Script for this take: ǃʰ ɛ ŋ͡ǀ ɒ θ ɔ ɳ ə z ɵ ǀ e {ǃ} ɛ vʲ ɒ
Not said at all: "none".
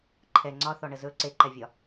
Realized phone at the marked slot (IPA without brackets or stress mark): ǃ